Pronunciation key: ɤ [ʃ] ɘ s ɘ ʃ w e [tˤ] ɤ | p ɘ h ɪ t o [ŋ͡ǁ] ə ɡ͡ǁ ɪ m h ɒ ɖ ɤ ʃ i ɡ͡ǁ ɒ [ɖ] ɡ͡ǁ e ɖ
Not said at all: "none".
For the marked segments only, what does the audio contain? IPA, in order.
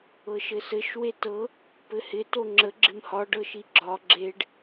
ʃ, t, ŋ͡ǁ, none

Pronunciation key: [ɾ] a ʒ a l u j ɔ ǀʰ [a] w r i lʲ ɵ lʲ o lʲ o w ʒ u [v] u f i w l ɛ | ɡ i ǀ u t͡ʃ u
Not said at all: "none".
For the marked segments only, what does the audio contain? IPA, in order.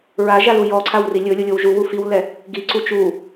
ɹ, a, w

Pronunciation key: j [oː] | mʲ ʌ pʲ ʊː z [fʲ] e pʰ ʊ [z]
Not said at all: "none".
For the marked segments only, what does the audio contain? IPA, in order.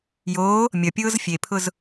oː, fʲ, z

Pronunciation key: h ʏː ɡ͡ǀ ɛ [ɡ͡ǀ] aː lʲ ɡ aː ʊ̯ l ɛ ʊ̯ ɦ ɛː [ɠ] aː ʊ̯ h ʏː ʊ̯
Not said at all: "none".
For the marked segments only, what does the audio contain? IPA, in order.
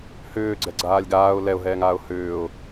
ɡ͡ǀ, ŋ

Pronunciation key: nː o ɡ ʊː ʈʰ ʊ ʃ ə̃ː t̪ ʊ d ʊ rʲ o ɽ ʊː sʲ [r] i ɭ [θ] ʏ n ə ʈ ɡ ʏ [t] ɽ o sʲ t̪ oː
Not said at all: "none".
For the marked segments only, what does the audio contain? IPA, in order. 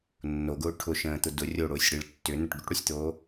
ɽ, tː, ʈ

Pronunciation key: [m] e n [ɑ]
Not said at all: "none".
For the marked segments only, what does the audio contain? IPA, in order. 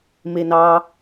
m, ɑ

